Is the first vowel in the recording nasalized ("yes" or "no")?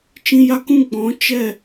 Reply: yes